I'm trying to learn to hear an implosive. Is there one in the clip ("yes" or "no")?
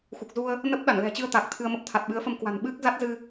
yes